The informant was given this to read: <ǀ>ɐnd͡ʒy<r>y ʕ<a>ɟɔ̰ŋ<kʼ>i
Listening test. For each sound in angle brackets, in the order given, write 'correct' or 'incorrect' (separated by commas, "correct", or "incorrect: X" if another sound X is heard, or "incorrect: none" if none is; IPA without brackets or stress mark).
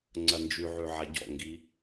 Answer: incorrect: ŋ͡ǀ, incorrect: ʕ, correct, incorrect: ɡ